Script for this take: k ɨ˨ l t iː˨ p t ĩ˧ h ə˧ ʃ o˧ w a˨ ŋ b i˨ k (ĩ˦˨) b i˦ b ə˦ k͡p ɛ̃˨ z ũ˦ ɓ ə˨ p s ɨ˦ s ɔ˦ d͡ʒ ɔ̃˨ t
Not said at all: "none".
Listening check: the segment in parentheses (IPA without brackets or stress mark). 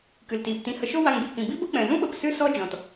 ĩ˨